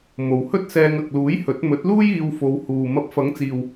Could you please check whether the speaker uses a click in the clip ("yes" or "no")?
no